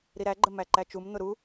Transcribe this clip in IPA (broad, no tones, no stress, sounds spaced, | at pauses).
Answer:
ɾ i ɾ æ ɡ͡ǃ ə m æ ǃ æ t͡ʃ u m n̪ ʊ ɾ u